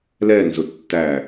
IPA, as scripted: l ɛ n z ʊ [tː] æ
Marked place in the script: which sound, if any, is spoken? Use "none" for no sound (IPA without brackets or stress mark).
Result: tː